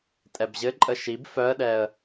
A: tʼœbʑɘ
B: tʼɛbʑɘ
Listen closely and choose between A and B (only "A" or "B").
B